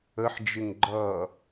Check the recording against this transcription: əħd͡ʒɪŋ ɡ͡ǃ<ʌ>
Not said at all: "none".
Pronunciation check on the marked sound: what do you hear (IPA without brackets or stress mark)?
ʌ